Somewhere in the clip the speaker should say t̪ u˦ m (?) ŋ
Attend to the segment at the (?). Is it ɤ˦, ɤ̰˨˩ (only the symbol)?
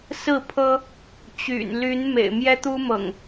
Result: ɤ̰˨˩